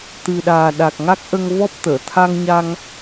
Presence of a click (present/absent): absent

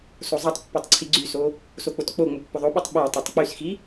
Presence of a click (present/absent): present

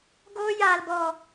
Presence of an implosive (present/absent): absent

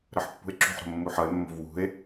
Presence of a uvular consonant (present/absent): absent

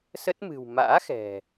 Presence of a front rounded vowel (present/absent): absent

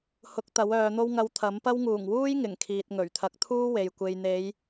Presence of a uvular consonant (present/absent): absent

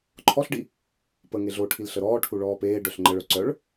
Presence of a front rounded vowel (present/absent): present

